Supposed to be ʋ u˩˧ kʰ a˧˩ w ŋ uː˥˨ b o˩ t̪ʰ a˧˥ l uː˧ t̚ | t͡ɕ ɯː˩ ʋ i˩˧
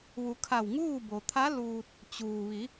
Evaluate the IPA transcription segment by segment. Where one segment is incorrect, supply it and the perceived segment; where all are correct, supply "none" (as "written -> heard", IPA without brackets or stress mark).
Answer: ɯː˩ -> uː˩